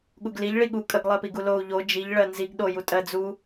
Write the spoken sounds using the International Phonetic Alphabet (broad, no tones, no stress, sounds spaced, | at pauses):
ɠ u ɡ l i ʎ ɭ i ɠ u kʼ ə ɡ lˠ ɜ p i ɡ u l o u̯ ʎ o d͡ʒ i ʎ ɭ ɜ n z i ɡ ɗ o j u tʼ ɜ d͡z u